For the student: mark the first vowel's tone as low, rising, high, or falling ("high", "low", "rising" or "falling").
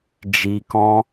low